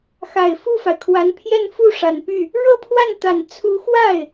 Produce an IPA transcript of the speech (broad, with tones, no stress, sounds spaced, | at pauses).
x a˨˩ ɪ̯ f u˥˩ f a˩ ɪ̯ kʰ w a˧˥ n pʰ j ɛ˥˧ n f u˥˩ ʂ a˨˩ n p y˥˩ | ɻ ɤ˥˧ pʰ w a˥˩ n t̪ a˨˩ n t͡sʰ u˧˥ x w a˥˩ ɪ̯